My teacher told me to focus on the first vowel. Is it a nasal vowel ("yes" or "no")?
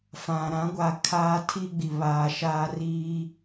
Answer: yes